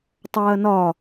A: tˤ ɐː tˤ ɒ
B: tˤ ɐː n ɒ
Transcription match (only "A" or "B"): B